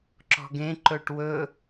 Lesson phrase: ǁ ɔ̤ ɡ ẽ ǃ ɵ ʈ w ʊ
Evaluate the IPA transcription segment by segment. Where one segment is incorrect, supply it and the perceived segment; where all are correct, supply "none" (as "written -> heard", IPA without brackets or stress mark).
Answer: ʊ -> ɵ